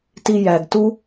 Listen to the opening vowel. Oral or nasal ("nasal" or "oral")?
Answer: oral